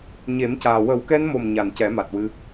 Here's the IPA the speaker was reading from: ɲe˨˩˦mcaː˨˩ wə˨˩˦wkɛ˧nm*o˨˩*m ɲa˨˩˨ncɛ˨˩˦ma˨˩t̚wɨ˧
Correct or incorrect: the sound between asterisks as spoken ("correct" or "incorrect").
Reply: correct